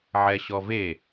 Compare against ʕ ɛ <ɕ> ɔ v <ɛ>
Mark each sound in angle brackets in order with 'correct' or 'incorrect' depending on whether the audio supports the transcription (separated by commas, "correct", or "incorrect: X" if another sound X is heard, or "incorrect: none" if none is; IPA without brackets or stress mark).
correct, incorrect: e